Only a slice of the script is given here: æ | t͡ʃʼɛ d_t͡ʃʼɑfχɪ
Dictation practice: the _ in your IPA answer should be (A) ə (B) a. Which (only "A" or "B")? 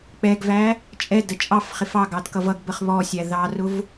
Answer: A